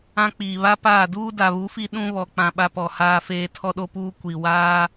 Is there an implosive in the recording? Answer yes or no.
yes